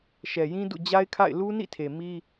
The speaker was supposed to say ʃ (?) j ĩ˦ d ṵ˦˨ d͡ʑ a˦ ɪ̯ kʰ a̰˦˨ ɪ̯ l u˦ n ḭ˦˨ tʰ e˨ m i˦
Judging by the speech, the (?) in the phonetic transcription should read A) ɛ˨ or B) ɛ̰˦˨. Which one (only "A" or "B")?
A